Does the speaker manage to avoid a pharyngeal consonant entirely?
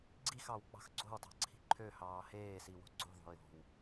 yes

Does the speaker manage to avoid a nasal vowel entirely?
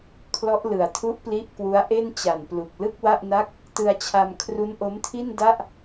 yes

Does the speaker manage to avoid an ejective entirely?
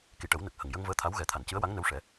yes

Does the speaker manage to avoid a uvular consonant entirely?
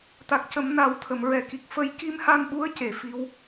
yes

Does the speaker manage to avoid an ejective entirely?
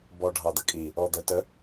no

